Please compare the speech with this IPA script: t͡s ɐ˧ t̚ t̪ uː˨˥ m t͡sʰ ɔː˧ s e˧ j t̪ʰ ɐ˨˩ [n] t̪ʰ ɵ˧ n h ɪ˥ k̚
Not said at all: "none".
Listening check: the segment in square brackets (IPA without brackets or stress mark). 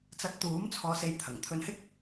ŋ